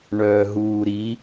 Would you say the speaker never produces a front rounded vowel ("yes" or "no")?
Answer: no